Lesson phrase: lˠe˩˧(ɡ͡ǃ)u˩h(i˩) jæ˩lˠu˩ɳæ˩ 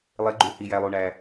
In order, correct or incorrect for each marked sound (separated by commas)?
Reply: correct, correct